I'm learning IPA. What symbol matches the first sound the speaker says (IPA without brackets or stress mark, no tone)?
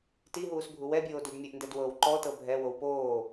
t